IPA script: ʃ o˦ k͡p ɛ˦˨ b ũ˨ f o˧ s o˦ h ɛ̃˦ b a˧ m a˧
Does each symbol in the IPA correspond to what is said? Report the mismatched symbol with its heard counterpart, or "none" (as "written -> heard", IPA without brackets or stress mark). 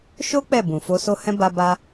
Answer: m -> b